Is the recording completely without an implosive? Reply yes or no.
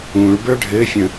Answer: yes